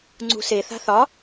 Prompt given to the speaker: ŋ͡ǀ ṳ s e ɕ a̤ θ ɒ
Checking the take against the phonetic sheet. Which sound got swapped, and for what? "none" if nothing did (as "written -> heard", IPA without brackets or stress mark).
ɕ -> θ